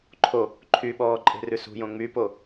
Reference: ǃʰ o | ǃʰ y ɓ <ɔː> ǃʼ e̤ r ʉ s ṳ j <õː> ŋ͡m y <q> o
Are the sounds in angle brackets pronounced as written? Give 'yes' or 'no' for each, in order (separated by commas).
yes, no, no